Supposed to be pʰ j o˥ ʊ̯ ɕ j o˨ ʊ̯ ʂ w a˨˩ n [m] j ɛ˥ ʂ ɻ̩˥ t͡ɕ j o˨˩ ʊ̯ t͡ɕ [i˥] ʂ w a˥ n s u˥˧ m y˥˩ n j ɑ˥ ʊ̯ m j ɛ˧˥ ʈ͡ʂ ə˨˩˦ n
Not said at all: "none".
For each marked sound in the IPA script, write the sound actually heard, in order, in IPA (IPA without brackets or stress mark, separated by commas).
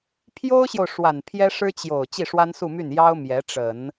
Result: pʰ, i˥˩